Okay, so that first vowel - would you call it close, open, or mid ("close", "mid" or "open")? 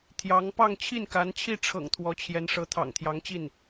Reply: open